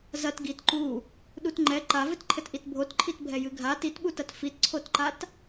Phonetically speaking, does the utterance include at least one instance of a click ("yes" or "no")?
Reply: yes